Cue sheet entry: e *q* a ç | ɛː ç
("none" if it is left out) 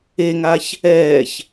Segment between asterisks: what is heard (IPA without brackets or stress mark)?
ŋ